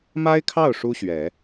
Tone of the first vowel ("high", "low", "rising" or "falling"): high